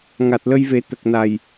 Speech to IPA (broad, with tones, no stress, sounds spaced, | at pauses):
ŋ a˨˩ t̚ l ə˧ j v e˨˩˦ t̪ ə˨˩ k̚ n a˨˩ j